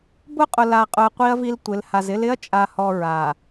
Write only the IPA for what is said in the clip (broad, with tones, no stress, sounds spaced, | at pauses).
b ʊ˦ qʼ ʊ˨ l a˨ qʼ ʊ˨ ɐ̯ qʷ i˦ ɐ̯ v i˦ l tʷ ɪ˨˦ l h a˨ z ɪ˦ l ɪ˦ ɐ̯ t͡ʃʼ a˨ h ɔ˨ ɹ a˨